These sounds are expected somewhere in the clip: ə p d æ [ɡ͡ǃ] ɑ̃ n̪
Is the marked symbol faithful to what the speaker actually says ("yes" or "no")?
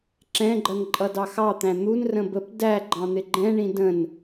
yes